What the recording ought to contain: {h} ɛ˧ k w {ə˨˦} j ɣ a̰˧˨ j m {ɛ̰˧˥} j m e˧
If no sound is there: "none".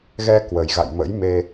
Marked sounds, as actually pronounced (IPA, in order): ɣ, ə˨˩, ə̰˧˥

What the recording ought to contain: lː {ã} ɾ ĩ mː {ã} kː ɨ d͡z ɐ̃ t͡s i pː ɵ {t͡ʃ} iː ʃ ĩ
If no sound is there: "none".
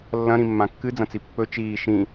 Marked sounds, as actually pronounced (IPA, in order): ɐ̃, ã, t͡ʃ

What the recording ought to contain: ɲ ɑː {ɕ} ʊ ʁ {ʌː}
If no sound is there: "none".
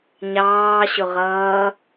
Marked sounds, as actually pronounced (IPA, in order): ɕ, ʌː

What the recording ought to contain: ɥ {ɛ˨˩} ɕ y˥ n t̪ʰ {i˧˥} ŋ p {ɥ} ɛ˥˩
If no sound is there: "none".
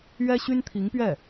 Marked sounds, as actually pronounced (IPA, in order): ɛ˥, i˧˥, ɥ

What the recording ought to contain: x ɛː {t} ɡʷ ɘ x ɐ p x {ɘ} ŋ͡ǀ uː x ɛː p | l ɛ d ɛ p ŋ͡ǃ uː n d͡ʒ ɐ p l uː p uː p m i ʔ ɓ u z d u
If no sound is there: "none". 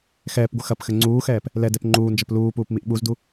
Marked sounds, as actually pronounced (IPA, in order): p, ɘ

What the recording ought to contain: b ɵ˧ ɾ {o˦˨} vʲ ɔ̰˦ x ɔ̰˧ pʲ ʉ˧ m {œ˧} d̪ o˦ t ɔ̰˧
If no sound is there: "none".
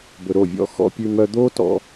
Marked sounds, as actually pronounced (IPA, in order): o˦˨, œ˧

